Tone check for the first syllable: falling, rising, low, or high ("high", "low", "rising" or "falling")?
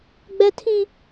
high